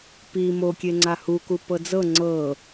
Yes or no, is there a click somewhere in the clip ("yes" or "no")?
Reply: yes